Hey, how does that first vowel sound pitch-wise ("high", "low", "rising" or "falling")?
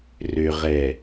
low